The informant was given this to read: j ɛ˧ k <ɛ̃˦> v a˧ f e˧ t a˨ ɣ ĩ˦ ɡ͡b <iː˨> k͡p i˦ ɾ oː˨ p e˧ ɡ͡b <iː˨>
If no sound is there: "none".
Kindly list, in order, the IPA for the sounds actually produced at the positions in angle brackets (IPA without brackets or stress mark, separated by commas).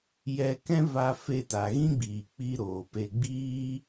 ɛ̃˦, iː˨, iː˦